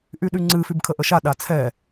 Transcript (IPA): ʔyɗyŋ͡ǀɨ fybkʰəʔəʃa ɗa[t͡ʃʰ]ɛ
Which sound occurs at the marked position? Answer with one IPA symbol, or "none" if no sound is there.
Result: t͡sʰ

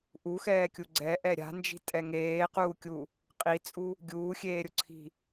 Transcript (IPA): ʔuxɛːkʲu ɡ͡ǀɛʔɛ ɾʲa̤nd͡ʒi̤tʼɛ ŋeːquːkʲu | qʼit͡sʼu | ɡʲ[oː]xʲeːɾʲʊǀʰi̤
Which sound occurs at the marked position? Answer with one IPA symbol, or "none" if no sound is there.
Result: uː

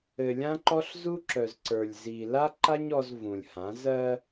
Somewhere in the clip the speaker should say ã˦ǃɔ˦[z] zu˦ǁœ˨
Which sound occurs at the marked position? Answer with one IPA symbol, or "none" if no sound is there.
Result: ɬ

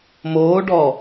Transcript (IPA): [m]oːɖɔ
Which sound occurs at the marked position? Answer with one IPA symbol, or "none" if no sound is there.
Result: m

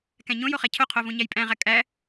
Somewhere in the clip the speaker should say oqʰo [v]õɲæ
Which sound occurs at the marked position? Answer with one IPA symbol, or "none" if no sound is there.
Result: v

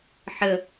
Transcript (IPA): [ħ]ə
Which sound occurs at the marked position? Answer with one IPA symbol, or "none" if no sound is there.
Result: ħ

